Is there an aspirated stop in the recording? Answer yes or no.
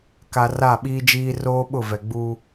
no